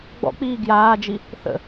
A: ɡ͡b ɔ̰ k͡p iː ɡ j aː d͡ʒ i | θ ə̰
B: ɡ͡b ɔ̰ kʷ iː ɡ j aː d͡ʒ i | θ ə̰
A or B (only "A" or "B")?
A